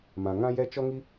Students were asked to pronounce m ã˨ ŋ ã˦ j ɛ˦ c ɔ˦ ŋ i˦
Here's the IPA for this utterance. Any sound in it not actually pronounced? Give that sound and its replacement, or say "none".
c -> t͡ʃ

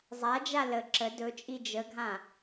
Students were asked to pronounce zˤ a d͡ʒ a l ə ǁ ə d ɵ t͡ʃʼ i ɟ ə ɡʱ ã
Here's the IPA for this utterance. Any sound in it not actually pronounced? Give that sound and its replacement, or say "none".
ɟ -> d͡ʒ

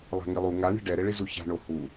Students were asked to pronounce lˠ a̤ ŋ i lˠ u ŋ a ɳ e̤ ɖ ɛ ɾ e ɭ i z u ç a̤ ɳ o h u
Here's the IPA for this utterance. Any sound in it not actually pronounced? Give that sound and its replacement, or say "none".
none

